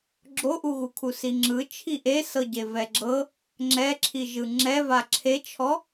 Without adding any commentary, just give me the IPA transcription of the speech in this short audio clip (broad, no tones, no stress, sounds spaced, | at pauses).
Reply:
ɡ͡ǁ o ʔ u ɣ u kʰ u s i ŋ͡ǁ ɯ t͡ʃʰ i ʔ e s ɤ ɟ e v ɛ ɡ͡ǁ ɤ | ŋ͡ǁ ɛ ǁʰ i ʒ ɯ ŋ͡ǁ ɛ v a ǁʰ e t͡ʃʰ ɔ